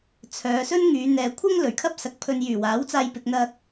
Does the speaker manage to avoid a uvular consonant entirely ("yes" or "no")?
yes